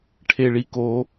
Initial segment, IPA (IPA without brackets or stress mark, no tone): ʈʰ